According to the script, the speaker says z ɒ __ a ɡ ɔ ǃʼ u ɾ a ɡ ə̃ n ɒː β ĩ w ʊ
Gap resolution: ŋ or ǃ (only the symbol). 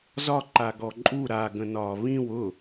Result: ǃ